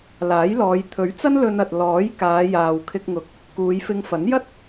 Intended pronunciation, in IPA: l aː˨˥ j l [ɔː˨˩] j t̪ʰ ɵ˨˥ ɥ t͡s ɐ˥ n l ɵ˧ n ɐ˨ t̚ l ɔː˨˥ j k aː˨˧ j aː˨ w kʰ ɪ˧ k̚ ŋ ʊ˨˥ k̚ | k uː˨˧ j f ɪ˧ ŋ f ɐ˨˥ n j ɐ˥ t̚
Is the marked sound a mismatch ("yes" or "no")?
yes